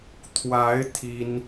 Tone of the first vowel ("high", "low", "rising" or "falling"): rising